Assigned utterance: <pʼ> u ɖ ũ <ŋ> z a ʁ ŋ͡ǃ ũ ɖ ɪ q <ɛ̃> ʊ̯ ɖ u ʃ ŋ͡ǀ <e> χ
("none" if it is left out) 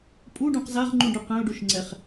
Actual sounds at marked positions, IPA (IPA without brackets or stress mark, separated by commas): pʼ, q, ɛ̃, ɛ